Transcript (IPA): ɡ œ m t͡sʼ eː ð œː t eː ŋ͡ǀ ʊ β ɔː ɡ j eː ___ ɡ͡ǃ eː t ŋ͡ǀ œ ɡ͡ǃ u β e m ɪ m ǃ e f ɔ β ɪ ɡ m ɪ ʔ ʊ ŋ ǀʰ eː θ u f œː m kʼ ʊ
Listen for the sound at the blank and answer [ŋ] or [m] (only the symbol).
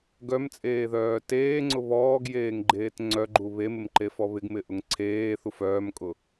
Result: ŋ